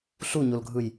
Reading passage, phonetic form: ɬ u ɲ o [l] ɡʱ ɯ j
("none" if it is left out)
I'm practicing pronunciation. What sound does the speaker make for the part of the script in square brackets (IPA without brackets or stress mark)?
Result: l